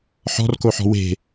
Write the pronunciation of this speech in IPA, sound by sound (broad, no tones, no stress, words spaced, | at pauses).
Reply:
ħɔ̤rkoħɔ̤ we̤